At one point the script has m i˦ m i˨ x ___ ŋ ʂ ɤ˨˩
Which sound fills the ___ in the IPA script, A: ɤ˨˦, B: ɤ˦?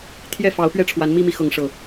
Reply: A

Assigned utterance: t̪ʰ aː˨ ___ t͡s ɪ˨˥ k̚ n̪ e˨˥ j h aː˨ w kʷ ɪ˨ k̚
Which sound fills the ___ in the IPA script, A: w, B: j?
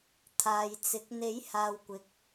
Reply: B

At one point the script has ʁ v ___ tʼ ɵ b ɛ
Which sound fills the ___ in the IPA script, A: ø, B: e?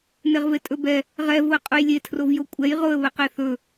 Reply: B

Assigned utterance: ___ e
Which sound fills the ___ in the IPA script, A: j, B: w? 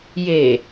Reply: A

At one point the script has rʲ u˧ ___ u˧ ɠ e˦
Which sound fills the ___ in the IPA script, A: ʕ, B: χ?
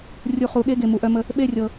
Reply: B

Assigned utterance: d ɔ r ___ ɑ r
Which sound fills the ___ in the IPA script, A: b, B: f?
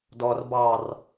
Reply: A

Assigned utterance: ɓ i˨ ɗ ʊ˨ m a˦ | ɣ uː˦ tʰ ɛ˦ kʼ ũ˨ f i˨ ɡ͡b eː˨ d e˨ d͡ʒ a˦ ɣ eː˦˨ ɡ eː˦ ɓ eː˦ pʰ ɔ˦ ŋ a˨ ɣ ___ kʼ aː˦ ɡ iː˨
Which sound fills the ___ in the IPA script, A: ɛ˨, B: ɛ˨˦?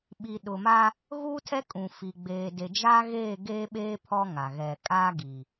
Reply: A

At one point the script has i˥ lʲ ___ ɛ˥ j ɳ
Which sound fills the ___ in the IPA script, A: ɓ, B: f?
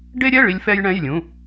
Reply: B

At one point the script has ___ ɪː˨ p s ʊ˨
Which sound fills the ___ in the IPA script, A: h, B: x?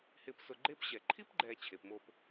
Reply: A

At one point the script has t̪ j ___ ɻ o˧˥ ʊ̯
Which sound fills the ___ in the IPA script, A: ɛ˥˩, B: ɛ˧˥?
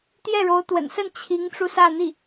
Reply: A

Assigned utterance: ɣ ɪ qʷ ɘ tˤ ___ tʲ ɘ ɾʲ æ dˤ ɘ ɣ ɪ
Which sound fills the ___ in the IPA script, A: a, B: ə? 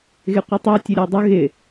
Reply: A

